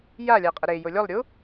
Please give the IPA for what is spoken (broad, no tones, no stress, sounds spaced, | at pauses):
j a lʲ a qʼ ʌ ɾ e j o lʲ o lˠ ɾʲ u